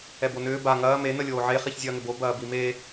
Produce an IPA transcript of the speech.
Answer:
ɛ b o n ʏː b a ŋ ɐː m e n ə lʲ oː ʕ e χ i ç zʲ ɐː ŋ ʏ b o b ɐː b i m e

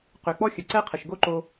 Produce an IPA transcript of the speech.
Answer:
q ø˩ k͡p ɔ˥ xʲ ə˩ ǀ ɛ˥ qʰ ə˩ ʃ ɡ o˥ ǃ o˧

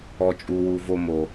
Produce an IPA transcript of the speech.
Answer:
ɔ˨ t͡ʃʼ u˨ w u˨ v o˧ m o˨

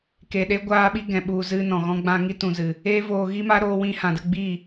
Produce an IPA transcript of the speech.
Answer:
k e˨ ɗ e˦ ɡʷ aː˧ ɓ i˧ ɡ ɛ̃˨ ɓ u˨ z ɨ˧ n ɔ̃˨ ɣ ɔ̃˧ ɡ͡b ã˧ ŋ i˦ t ũ˨ z ɨ˨ | eː˦ v oː˧ ɣ i˦ m a˦ ɾ oː˧ w ĩ˧ h ã˨ d ə˧ ɡ͡b i˦˨

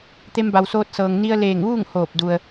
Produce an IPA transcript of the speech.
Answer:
t̪ e˧ m b a˩ w s oː˧ t̚ s ɤː˩ ŋ n i˧ ə̯ l eː˧˩ ŋ ʋ uː˥˨ ŋ h oː˧˩ p̚ d u˩ ə̯

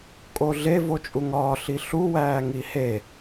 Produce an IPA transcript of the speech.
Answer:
kʼ o ɮ e v o t͡ʃʼ u ŋ ɒː ɬ i ɬ u w æː ŋ i h e

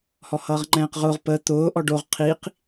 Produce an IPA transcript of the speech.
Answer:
h ɔ h ʌː ʁ ŋ͡ǃ ɛ̃ː q ʁ ʊː ʁ p ə t̪ ʊː ʔ ɔ ɖ o ʁ qʰ i q

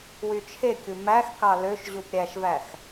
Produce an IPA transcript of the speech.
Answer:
w y t͡ʃʰ e kʲ u m æ x k ɑ l ø ʃ ʑ u p ɾʲ æ ʃ v æ x

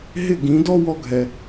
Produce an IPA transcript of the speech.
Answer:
ɦ ɪ˥˩ ɡ ĩ˩˥ d ɔ˥ w ɔ˥ ɡʱ ɛ˩

